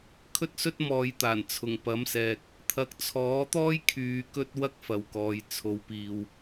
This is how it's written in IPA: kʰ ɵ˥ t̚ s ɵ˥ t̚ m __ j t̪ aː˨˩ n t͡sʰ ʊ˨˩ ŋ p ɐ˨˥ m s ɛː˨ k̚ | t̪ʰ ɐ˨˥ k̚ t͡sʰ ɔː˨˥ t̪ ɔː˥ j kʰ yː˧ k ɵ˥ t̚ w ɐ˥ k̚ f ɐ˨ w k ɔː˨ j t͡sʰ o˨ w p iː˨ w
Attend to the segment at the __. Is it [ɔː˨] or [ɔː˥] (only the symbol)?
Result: ɔː˨